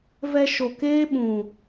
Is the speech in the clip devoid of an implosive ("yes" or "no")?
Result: no